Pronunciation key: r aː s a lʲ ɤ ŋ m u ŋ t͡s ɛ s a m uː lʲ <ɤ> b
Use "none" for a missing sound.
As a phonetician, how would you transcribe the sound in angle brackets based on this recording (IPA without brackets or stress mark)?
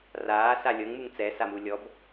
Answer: ɔ